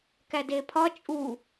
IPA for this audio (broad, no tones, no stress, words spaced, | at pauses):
kædepʰɒ t͡ʃʼu